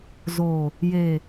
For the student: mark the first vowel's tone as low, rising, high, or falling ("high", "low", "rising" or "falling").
low